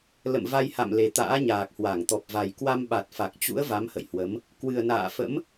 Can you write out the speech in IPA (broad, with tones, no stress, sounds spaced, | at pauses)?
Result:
l ə̰˧˨ m v a˧ j h a̰˧˨ m l e˨˩ t̪ a̰ː˧˥ ɲ aː˨˩ k̚ h w a˧˩ ŋ t̪ ɔ˨˩ p̚ v a˨˩ j k w a˧ m ɓ a˨˩ t̚ f a˨˩ k̚ t͡ɕ ṵ˧˥ ə̯ v a˨˦ m h ə̰˧˨ j h w ə˨˦ m | k w ɨ˨˩ ə̯ n a̰ː˧˨ f ə̰˧˥ m